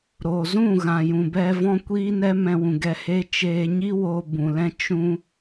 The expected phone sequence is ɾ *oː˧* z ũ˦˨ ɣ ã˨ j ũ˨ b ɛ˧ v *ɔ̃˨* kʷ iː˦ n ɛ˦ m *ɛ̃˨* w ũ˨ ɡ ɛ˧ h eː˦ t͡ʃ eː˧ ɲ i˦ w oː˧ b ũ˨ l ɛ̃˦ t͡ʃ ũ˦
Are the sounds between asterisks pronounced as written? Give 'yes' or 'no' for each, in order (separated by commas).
no, no, no